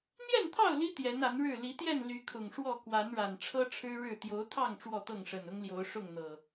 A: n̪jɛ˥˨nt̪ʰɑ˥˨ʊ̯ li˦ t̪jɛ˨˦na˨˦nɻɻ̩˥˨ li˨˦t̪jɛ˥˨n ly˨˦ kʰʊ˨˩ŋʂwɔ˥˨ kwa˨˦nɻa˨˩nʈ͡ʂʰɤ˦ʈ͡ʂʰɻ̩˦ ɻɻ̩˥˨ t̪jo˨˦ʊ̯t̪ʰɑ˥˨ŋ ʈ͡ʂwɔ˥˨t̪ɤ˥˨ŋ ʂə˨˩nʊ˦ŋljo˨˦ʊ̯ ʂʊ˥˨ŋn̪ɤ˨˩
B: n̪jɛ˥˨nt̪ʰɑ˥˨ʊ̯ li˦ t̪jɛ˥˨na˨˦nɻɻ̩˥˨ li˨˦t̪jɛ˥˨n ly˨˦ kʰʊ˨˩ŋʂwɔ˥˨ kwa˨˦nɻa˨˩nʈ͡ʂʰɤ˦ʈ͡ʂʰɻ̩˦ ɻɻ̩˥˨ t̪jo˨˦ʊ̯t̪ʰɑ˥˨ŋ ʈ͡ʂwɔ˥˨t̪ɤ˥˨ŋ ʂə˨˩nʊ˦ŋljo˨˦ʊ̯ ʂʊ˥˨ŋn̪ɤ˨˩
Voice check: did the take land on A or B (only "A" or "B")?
A